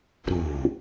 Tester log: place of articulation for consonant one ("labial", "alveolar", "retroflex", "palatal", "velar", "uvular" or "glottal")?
alveolar